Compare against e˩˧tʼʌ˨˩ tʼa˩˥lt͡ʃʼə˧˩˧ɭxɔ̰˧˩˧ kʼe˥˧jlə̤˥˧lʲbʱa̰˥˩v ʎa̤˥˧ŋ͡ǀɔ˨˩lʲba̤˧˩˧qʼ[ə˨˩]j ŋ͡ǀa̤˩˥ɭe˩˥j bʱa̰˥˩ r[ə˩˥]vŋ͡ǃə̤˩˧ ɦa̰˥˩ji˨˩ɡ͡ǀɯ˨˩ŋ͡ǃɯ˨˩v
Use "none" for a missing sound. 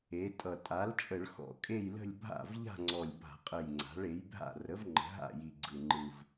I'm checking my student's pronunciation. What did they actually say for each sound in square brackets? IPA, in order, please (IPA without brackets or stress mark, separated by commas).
ə˨˩, ə˩˥